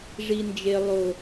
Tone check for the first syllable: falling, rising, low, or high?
high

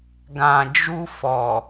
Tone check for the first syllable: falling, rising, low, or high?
low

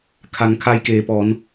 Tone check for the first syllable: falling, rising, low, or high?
low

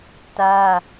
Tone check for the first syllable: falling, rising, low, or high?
high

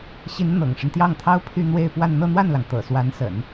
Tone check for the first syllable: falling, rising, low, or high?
rising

